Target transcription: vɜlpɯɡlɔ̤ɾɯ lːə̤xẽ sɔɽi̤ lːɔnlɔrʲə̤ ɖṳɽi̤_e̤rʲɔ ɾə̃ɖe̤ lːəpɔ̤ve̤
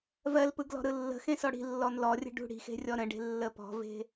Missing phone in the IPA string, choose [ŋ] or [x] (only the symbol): x